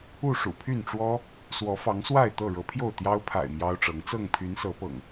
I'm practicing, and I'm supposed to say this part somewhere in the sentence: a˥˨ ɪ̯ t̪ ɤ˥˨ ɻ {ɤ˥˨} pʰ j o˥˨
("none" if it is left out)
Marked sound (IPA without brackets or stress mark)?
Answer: ɤ˨˦